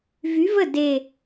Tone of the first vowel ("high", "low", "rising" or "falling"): rising